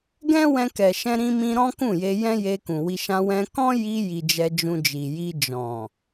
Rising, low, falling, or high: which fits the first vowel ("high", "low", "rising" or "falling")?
high